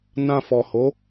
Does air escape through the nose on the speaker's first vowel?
yes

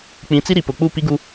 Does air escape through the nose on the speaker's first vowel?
yes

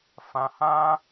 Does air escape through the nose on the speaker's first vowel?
yes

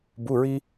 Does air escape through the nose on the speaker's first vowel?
no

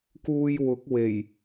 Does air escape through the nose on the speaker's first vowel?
no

